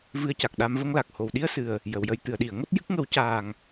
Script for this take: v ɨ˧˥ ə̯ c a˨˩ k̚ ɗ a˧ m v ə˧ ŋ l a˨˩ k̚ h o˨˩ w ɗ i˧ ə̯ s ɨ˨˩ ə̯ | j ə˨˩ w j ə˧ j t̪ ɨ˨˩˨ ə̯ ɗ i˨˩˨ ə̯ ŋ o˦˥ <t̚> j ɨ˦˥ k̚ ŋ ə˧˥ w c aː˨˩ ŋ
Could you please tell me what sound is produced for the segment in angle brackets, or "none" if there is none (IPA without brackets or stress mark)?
t̚